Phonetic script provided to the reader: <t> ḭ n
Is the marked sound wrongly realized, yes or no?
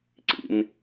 yes